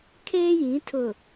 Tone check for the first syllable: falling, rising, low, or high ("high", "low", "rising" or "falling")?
high